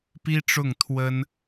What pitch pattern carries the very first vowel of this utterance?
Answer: high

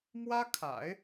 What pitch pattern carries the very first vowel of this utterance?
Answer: high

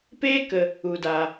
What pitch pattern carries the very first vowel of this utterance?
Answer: high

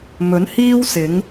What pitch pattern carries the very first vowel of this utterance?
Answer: rising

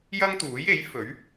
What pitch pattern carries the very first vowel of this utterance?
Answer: high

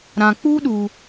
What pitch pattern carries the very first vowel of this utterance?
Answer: low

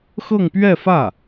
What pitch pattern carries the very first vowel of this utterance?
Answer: falling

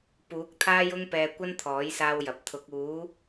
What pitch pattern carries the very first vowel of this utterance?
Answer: rising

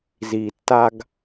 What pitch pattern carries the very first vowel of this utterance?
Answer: low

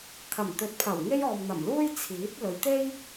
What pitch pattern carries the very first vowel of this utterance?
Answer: low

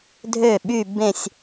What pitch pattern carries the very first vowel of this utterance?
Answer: falling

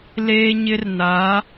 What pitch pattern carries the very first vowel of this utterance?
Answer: high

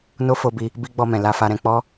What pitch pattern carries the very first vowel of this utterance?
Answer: high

